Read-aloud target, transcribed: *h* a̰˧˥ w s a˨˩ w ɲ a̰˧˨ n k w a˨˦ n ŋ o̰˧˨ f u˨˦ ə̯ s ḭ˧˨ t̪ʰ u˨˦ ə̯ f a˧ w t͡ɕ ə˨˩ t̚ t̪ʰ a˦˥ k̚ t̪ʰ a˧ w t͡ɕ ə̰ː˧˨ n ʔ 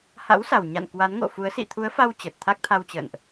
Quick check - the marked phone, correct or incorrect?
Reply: correct